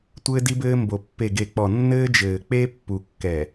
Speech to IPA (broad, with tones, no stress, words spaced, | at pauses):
tʷɘː˦di˦bɘː˦ mbo˨ pːe˨ɡe˨k͡pɔ˨ nːɘː˦d͡ʒɘː˨k͡pe˦ pːu˨kːɛ˨